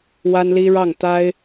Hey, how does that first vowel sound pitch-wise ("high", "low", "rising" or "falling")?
high